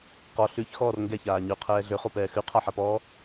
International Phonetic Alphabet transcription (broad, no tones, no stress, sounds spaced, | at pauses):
q ɔ ɬ ʉ ç x ɔː r ŋ ɡ ɛ ç aː ɲ ʉ qʰ ɛː ɮ ø χ o p ɛː x ʉ qʰ a ħ a p ɔː